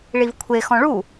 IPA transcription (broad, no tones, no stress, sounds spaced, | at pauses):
ɭ i v kʷʰ e x ɔ̃ ɭ u